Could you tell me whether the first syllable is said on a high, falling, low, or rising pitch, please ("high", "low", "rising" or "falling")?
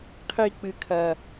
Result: low